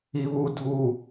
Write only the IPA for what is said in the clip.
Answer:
iβu dʱu

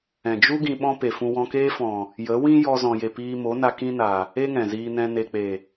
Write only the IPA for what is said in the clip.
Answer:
ɛ̃˨d͡ʒu˦ ɡĩ˧ɓɔ̃˦pe˨ fũ˧wɔ̃˧keː˦fɔ̃˨ | jə˨˦wĩ˦ jɔ˧zɔ̃˨je˨ piː˧mo˨˦na˧ kĩ˦na˨ | e˦ŋɛ̃˨ziː˧nɛ̃˧ ne˨k͡pe˨

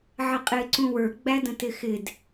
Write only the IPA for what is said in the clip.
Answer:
ʕəqʼɪːǀũwə˞ ɡ͡bædə̃tɪxɪd

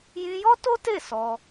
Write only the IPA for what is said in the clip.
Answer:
jĩ˧jɔ˦to˦te˦˨ sɔ˧

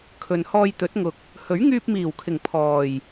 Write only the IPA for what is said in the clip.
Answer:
kʰɵ˨nhɔː˧jt̪ɵ˨˥t̚ŋʊ˨k̚ | hɵ˨˥ɥŋyː˧p̚miː˨˩wkʰɪ˨˩ŋ pʰɔː˨˩j

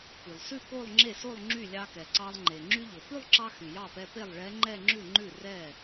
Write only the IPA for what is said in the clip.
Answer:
py˩lˠsʉ˥˧ ko˥˧lˠŋ͡ǁe˥˩so˥˧lˠ ŋ͡ǁy˥˩lʲɑ˧kɛ˩ ǀɑ˧lˠŋ͡ǃe˩ ŋ͡ǁy˧ʎo˩pʉ˥˧lˠǁɑ˧ xy˩jɑ˥˩pɛ˧ pe˥˩lˠɭɛ˧˥ŋ͡ǃɛ˥˧ŋ͡ǁʉ˥˩ ŋ͡ǃʉ˥˩ rɛ˥˩

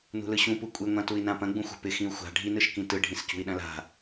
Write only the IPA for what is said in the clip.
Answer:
nṳlɯɕũ pukʷʼɪ ŋʷãtui̯nãpɐ̃ ɡ͡bũxʷa̤pɪ xĩu̯xʷa̤ ɖʱi nɯʃkĩtɯ ɖʱĩscṳi̯ɗɐ̃la̤

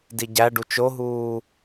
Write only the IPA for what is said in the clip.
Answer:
diɟæɖu t͡ʃoɦuː

